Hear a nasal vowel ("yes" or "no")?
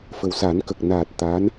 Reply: no